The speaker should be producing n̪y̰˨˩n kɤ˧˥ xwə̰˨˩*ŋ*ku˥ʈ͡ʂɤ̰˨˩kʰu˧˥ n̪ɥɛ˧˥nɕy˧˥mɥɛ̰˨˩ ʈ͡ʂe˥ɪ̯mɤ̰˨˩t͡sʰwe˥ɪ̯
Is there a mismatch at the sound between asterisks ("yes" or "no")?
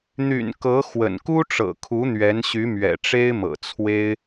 yes